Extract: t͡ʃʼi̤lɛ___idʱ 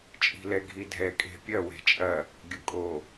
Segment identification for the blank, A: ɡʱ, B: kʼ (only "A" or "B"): A